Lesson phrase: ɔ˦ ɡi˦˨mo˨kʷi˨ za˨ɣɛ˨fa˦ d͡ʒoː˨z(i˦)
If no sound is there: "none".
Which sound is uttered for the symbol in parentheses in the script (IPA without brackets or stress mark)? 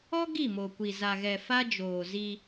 i˦